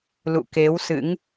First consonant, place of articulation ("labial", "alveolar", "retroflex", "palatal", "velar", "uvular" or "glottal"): alveolar